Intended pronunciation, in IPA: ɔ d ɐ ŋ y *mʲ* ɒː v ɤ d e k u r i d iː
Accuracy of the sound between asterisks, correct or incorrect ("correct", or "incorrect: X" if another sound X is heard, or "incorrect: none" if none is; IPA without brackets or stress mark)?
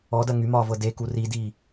incorrect: m